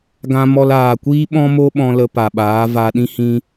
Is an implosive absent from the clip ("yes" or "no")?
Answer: no